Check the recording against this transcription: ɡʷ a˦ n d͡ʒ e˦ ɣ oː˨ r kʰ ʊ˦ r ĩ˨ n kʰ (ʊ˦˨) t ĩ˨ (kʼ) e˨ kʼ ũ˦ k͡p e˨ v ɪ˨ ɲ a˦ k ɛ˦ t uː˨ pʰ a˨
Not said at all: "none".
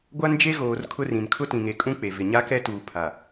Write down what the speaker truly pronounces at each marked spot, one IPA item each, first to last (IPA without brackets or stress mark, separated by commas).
ʊ˦, ŋ